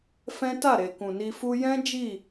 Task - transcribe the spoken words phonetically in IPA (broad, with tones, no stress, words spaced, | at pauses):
fɛ̃˦ ta˦˨ɾe˨ kũ˨ni˧fu˦ jɛ̃˦ d͡ʒi˦˨